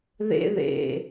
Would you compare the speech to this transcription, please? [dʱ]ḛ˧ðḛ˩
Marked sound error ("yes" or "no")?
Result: yes